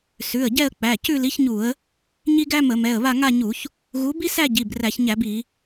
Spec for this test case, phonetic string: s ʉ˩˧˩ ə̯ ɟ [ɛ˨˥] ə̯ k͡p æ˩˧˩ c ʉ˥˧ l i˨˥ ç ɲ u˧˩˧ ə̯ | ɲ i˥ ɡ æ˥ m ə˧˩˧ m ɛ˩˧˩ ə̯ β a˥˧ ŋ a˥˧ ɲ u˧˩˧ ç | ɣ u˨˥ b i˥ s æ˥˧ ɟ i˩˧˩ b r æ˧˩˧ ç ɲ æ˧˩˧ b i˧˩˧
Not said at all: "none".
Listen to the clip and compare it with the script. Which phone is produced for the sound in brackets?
ɛ˥˧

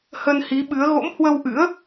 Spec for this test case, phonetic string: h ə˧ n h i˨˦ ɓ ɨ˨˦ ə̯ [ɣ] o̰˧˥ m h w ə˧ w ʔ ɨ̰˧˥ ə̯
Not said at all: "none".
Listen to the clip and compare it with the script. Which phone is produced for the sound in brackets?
ɣ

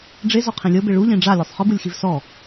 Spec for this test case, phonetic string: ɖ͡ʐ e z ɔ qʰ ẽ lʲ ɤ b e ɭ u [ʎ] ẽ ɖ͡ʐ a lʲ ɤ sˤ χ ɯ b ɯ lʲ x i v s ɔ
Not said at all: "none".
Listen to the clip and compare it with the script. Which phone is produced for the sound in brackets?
ʎ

